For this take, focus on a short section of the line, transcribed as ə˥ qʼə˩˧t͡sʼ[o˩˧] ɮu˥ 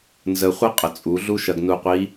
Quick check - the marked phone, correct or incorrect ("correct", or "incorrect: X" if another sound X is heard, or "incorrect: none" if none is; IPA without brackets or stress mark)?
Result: incorrect: u˩˧